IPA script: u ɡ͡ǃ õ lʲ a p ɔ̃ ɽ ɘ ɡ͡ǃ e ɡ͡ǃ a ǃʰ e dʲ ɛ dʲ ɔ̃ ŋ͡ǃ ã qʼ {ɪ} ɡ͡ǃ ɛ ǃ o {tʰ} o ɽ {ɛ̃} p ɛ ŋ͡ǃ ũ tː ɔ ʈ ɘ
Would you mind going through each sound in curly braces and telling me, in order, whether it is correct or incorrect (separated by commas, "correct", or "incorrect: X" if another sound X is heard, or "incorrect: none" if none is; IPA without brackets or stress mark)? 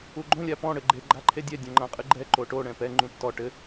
incorrect: ɨ, incorrect: ʈ, correct